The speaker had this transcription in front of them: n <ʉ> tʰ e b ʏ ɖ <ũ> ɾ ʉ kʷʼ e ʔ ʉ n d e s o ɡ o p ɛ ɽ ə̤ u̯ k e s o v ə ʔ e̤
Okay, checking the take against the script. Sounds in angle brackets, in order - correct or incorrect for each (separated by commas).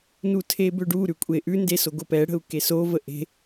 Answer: incorrect, incorrect